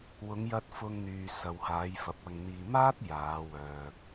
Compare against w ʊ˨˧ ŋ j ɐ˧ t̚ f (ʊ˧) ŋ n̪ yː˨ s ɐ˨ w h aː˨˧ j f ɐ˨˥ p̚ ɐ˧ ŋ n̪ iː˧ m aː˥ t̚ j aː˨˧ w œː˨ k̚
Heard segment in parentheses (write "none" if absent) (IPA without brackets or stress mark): ʊ˧